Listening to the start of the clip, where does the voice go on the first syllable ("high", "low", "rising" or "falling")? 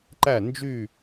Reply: falling